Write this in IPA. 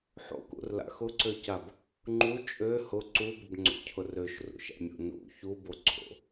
ħo̰kṵrla̰ xʊǀøcab | ŋ͡ǃu t͡ʃʼø hʊ ǀubʏbŋ͡ǀo̰cʰʊr øʃrṵʃa̰mʲo̰ nṵ çuboǀʰo̰

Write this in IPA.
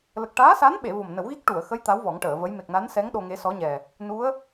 lə˨˩k̚ʈaː˧˥sa˧˥nɓe˨˩˨ vo˨˩mnə˨˩˦wɣi˦˥k̚ ʈu˨˩˨ə̯xə˧˥j t̪a˧˥w vɔ˨˩˦ŋʈəː˨˩˨və˧˥j me˨˩k̚na˧˥nsɛ˧˥ŋ ɗo˧ŋe˧˥sɔ˧˥ɲɛ˨˩ | nu˧˥ə̯

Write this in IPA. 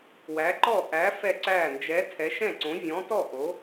wæ˨˥ǃɔ˥˩ ʔæ˨˥ fɛ˥˩ǀæː˥˩ nd͡ʒɛ˨˥ tʰɛ˨˥ʃɛ̃˥˩ǀõ˨˥ vʲɔ̃˨˥tɔ˥˩ ʔo˨˥

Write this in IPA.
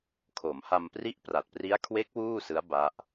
kʰo˩˦mha˧mpri˥˩ʔ pra˨˩t̚pri˦˥a̯kʰwe˦˥k̚ wuː˥˩sɯ˦˥a̯ ba˦˥ʔ

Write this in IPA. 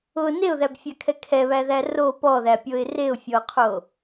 ʊ neʊ̯ðæbfʲakʰɛ kʰɛβæðæ ro pɔðæpʲoɪ̯ reʊ̯fʲɔʊ̯qʰo

